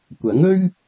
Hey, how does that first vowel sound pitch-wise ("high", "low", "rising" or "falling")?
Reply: rising